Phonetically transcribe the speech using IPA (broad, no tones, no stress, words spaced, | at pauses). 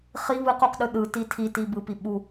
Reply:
χi βɯquqɗɯ ɗɯ titʰiti bɯpi ɓu